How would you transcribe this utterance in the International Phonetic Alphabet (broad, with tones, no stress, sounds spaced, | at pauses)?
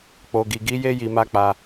k͡p o˨ ɡ i˨ ɡ i˨˦ j e˦ j i˧ m a˦ k͡p a˧